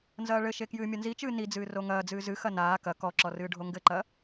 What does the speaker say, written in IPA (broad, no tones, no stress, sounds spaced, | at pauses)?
n z ɐː ɭ ɘ ʃ e k j ɨː mʲ ɐ n z i t͡ʃ ɨː n i d͡z ɨː r o ŋ ɐː d͡z ɨː z ɨ x ɐ n aː k ɐ k ɔ ǁ ɔ r ɨː ɖʱ o ŋ ɡ ɘ ǃ ɐ